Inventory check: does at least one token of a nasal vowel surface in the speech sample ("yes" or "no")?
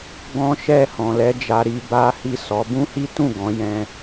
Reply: yes